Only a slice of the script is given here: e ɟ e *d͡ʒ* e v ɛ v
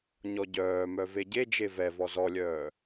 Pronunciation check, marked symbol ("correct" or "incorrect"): correct